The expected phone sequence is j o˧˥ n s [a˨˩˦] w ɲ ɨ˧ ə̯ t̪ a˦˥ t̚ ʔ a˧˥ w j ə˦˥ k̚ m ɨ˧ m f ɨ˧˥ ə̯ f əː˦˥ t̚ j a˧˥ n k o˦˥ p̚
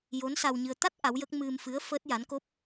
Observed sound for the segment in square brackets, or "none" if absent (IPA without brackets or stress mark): a˧